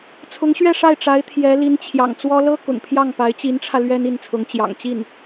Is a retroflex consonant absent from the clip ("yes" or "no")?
no